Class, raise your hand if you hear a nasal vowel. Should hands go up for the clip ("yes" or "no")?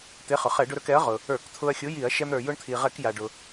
no